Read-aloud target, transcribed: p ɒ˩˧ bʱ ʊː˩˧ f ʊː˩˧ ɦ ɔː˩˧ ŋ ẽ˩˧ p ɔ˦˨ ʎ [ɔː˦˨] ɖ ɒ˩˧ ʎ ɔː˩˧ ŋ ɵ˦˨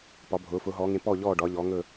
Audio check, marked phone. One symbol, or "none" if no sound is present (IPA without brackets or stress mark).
ɔː˦˨